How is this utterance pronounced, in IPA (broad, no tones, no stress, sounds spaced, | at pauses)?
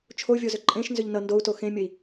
t͡ʃʰ o vʲ o z ʏ ǃʼ ẽ ʃ n z ʏ ʎ n ʌ n d o u̯ t o x ẽ mʲ ə i̯